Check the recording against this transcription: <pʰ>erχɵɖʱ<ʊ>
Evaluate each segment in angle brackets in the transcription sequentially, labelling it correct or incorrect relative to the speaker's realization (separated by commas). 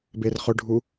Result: incorrect, incorrect